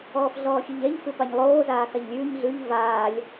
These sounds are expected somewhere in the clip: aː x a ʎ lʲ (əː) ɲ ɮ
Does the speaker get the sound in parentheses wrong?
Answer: yes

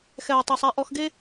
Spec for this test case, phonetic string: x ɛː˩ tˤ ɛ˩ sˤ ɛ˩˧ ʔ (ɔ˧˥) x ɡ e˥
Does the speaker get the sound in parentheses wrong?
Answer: yes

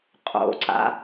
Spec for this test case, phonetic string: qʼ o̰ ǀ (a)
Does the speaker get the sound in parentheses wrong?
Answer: yes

